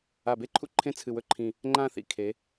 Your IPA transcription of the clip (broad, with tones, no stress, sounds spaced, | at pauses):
a˧˩ b e˥ ǃʰ ṵ˥ ǃʰ ẽ˥˧ t͡sʰ ɨ˧˩ w ɵ˥˧ ǃʰ ĩ˧˩ | ŋ͡ǃ ã˥˧ θ ḭ˧˩ kʰ e˩˧